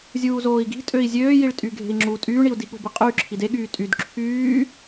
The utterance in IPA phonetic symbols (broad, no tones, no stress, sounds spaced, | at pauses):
zʲ uː z oː i̯ ɡ i̤ tʼ ø i̯ zʲ øː j i ɭ tʼ y ɡʱ e̤ i̯ ŋ͡ǁ u tʼ yː ɳ i u̯ d i ɠ o̤ b i qʼ yː ǁʰ i d e ɠ yː tʼ y d ǁʰ yː